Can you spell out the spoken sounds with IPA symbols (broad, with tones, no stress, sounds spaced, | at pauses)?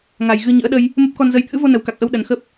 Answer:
ŋ a˨˩ j ɣ ɨ˧ ɲ ɨ̰˧˥ ə̯ ɗ ə˧ j | m ə˦˥ p̚ k ɔ˧ n z ə˧ j t̪ʰ ɨ̰˧˥ v o˧ n ə˨˩ w k a˨˩ k̚ ʔ ə˧ w ɗ ə˨˩ n x ə˦˥ p̚